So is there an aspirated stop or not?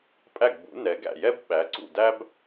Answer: no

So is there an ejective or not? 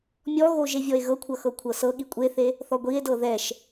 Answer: yes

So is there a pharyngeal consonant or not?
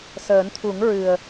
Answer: no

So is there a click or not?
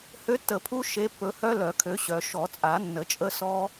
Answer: no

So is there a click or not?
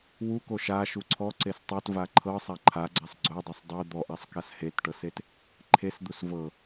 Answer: yes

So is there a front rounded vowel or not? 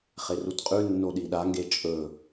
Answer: no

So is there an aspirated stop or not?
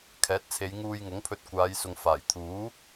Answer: yes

